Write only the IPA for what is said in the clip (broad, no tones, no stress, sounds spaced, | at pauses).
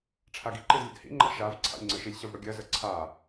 ʈ͡ʂʰ a ɡ i ǃ i z lʲ ə̰ d h ḭ ŋ͡ǃ a̰ ʃ a v ǀʰ a̰ lʲ ŋ͡ǀ ə ʃ i lʲ ɕ ə v ɽ ʊ ɡʲ ɜ z ə ǀʰ a